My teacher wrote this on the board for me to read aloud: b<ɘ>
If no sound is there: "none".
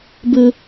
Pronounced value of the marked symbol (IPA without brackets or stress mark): ɘ